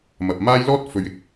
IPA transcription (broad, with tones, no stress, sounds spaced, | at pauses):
m ɐ˨ p̚ m aː˥ j l ɔː˥ t̚ f ɵ˨ ɥ ɪ˨˥ k̚